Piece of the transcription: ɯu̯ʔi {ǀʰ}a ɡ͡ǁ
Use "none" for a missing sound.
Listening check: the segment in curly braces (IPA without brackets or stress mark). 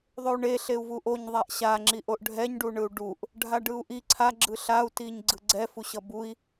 ǀʰ